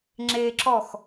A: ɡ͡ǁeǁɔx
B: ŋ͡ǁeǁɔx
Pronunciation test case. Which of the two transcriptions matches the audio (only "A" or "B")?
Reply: B